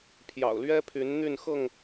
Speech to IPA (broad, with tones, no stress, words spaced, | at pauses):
pʰjɑ̰˨˩ʊ̯lɥɛ˦pʰy˨˦n n̪y˥˨nxɤ˥˨ŋ